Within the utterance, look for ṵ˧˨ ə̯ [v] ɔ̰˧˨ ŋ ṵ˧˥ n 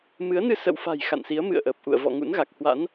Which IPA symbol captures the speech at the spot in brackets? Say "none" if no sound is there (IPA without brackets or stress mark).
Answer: v